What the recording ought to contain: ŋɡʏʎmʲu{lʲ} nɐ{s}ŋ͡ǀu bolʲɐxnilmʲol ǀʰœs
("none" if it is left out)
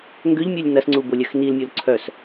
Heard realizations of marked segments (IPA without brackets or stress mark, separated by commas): lʲ, s